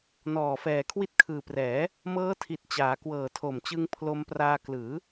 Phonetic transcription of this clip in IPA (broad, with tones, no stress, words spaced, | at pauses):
nɔː˨˩ fɛː˨˩kʰwi˦˥t̚kʰɯː˨˩prɛː˩˦ | mɤː˦˥tʰi˨˩t̚t͡ɕaː˩˦ kwɤː˨˩tʰo˨˩mt͡ɕɯ˧ŋ pʰlo˧mpraː˧klɯː˩˦